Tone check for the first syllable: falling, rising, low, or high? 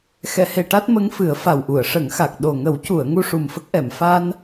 low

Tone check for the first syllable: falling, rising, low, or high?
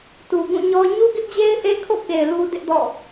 low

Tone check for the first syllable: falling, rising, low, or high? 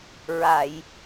low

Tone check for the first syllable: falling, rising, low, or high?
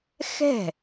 falling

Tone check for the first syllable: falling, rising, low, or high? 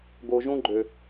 low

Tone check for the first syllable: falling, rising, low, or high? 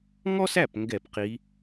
high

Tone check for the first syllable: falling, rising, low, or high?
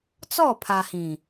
falling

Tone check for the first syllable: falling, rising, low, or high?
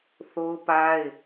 high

